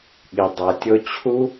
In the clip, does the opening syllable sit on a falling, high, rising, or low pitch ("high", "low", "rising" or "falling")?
low